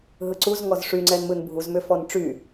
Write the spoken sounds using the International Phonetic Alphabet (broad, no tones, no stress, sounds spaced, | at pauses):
ɦ ɯ ǀ u z ŋ ɔ z ʂ y ŋ͡ǀ ɛ n m ɯ n bʱ u z m ʏ f ɔ n ʈ͡ʂ y